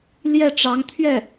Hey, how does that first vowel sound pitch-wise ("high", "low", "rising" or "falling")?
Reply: falling